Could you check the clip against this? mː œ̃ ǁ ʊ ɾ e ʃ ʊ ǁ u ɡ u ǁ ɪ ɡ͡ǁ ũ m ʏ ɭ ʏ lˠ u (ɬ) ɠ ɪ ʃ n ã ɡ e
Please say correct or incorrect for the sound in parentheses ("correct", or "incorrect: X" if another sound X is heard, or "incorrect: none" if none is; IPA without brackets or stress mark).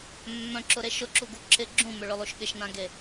incorrect: ʃ